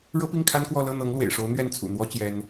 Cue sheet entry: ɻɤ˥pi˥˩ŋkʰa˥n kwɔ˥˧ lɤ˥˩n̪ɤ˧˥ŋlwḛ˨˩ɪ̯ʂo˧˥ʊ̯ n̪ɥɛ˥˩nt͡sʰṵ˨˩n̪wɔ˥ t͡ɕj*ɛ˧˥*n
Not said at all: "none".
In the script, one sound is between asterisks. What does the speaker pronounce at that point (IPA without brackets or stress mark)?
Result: ɛ˥